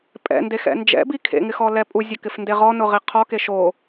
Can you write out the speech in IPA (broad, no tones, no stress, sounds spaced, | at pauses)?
pʼ ɛ̰ n d e x ɛ̰ n d͡ʒ ɛ̰ b i kʰ ḛ ŋ ɪ x ɔ l ɛ pʼ u zʲ ɔ k ɪ f n d e ʁ ɔ n ʊ ʁ i qʰ ɔ k e ʃ o